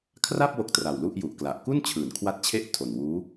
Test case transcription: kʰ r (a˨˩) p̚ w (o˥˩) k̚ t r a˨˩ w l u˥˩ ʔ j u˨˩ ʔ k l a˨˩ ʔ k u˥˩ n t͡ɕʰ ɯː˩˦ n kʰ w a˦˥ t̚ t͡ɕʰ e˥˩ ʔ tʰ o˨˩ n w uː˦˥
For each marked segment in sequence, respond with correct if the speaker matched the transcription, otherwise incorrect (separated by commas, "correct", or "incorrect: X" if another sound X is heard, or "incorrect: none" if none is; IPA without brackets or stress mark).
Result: incorrect: a˥˩, incorrect: o˦˥